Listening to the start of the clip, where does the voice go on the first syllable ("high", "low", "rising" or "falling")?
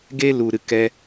high